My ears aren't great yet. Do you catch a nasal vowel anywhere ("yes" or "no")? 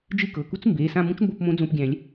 yes